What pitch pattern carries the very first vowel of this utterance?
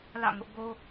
falling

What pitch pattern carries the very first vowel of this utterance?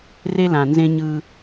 high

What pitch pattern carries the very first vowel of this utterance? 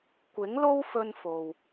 rising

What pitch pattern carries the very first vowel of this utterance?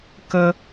low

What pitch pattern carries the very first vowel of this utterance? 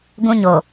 high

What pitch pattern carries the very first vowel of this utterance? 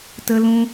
high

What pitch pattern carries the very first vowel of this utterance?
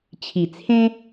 low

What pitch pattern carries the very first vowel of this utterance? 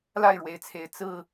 falling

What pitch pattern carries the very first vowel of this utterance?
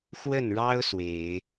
falling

